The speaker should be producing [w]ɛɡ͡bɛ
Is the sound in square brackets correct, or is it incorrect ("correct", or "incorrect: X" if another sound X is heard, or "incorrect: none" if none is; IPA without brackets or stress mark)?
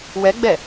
correct